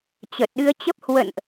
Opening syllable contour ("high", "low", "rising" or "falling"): low